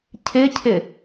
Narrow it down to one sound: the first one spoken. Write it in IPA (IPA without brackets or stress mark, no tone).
cʰ